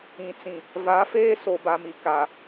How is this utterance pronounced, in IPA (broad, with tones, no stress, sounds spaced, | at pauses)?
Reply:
ĩ˨ t͡s ĩ˨ | v a˨˦ f eː˦ s o˨ b a˨ m i˨ k a˨